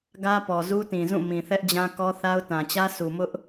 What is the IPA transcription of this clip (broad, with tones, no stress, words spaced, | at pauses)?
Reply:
ɡä˦pɔ˨ zu˦tĩ˨zũ˦˨ mĩ˨θɛ˦ʔd͡ʑã˦kɔ˦ θa˦ʊ̯tã˨ t͡ɕä˦su˨ mʊ˦ʔ